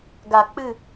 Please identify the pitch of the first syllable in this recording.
low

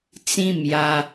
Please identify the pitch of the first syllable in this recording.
falling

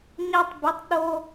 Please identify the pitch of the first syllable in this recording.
high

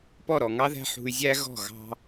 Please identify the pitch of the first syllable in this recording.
falling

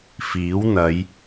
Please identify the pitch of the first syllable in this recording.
rising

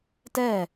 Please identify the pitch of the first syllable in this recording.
falling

